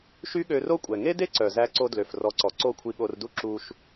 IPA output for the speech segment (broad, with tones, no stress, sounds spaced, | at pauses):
ʃ y˦ ɠ ø˧ r o˦ kʷʼ ɛ˨ ŋ e˦ d e˦ ǀ œ˨ z æ˧ ǀ o˧ d l ø˨ f r ɔ˨˦ ǀ ɔ˨ ǀ o˦˨ kʷʰ i˧ ɠ o˧ r d u˦ ǁ u˧ ʃ